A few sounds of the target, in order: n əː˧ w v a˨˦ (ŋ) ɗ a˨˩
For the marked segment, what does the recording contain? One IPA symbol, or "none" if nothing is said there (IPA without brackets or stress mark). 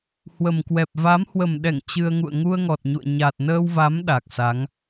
m